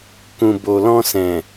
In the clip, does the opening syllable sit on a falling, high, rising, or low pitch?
low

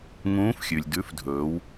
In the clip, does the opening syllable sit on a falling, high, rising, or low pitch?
rising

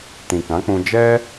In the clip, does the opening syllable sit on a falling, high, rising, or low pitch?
low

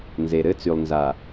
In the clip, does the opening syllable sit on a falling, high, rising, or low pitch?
low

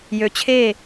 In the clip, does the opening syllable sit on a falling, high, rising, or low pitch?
rising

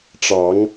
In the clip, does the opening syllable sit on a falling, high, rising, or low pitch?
rising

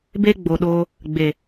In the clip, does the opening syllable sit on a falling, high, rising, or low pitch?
high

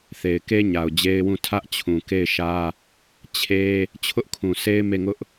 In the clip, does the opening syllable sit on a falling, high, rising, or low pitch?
low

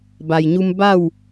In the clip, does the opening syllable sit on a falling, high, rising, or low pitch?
low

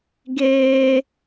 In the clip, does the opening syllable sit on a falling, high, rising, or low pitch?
high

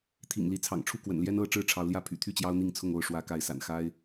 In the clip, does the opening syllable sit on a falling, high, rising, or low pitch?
low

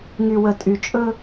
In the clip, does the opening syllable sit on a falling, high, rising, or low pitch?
low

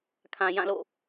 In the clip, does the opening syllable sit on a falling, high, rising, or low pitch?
low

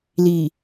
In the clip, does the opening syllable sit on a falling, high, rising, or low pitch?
low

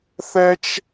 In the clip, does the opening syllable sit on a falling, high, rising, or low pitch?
high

